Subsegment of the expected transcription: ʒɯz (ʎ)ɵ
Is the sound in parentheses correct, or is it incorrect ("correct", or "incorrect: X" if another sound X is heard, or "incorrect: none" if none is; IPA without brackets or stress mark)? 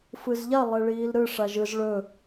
incorrect: ɭ